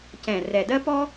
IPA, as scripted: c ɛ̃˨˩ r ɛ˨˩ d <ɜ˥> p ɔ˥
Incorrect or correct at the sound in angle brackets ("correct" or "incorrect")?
correct